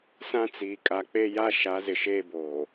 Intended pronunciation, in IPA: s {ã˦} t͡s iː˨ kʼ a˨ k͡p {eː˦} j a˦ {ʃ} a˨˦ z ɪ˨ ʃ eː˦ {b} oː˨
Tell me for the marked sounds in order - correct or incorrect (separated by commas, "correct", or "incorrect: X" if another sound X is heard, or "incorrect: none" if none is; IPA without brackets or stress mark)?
correct, incorrect: e˦, correct, correct